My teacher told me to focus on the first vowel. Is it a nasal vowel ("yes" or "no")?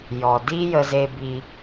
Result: no